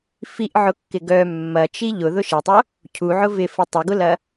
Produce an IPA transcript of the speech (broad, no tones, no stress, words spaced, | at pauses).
fiʔʕʊkːɪ ɡœ mːɐt͡ʃi ʎʊðʊʃ ɪtˤo | cʰuʕʊ vɪfə tˤɪɡʊlɐ